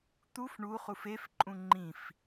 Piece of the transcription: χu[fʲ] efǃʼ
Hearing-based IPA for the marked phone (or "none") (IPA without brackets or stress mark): f